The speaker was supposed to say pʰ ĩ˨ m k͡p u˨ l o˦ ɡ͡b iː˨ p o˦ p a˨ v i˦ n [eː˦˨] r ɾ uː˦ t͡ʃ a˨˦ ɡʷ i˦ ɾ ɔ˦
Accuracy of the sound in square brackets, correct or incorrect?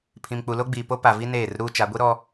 correct